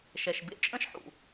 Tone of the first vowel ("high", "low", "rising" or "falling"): low